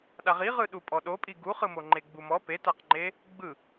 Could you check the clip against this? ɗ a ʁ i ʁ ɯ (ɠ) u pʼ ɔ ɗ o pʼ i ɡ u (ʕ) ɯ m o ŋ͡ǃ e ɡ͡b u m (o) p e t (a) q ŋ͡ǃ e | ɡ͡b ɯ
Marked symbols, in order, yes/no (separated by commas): no, no, no, yes